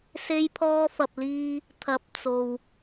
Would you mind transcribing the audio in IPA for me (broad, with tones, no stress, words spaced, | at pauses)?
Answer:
se˧jpʰɔː˧fɐ˨p̚liː˧ | t̪ʰɐ˨˥p̚ t͡so˨w